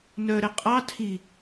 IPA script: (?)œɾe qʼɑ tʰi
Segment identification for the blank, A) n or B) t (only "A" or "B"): A